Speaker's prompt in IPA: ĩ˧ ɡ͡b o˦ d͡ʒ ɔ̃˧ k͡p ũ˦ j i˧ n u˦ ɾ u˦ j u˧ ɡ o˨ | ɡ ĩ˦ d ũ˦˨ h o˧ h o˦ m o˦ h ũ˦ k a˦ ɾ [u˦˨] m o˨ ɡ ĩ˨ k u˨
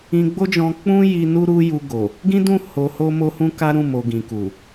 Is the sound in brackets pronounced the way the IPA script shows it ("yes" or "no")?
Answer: no